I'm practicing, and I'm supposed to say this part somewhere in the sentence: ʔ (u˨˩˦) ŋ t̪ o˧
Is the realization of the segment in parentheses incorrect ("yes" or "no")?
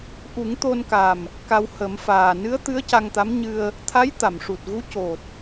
no